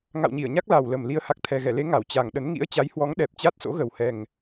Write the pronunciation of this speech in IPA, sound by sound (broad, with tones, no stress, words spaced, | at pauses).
ŋa̰˧˨wɲi˧˩ə̯ɲa˦˥k̚ la˨˩wlə˨˩m li˨˦ə̯ha˨˩k̚t̪ʰɛ˨˩ɣɛ˧˩ le˨˦ŋa˧˩w t͡ɕa˨˩ŋ ɗə˨˦n ŋḭ˧˥ə̯t͡ɕa˨˦j hwɔ˨˦ŋɗɛ˨˩p̚ t͡ɕa˦˥t̚so̰˧˥ɣə˨˩w hɛ˨˩ŋ